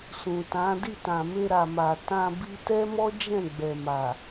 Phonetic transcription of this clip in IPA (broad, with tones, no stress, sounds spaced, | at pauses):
s ũ˨ t ã˨˦ d i˦˨ t ã˨ m e˧ ɾ a˨ m a˨ t ã˧ b i˧ t ɛ˦ m ɔ˦ d͡ʒ ɛ̃˦˨ ɡ͡b ɛ˨ m a˨